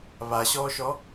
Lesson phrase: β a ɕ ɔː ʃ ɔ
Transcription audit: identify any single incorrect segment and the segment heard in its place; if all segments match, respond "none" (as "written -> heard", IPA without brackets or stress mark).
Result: none